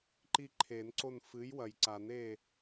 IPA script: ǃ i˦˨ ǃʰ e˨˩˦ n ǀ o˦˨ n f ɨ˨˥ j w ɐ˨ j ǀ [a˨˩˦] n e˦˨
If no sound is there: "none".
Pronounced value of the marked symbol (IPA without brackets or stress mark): a˨˩˦